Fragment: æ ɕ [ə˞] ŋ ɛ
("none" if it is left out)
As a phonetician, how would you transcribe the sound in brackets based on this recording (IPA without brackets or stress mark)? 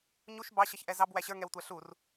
ə˞